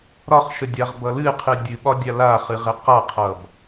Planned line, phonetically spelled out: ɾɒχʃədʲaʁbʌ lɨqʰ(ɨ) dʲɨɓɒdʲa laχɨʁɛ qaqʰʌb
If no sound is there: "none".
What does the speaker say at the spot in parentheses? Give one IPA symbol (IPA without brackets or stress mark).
ɨ